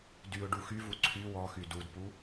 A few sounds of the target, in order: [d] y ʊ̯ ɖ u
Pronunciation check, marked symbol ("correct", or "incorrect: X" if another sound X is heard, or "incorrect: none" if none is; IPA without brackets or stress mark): correct